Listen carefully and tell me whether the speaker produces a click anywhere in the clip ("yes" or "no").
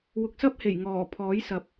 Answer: no